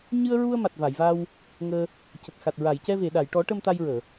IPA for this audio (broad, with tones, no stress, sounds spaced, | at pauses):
ɲ ɨ˧ ə̯ ɹ u˧ ə̯ m a˨˩ t̚ v a˨˩˨ j v a˧ w | ŋ əː˧ | c ə˨˩ k̚ x a˨˩ t̚ ɹ a˨˩˨ j c ɛ˧ v e˨˩˨ ɗ a˨˩˨ j ʈ ɔ˨˩˦ ʈ ə˧ m t̪ a˧ j ɹ əː˨˩˨